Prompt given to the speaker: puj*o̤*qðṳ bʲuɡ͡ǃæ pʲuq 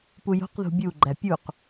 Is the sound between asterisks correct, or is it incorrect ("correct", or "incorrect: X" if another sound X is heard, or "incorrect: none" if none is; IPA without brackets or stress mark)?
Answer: correct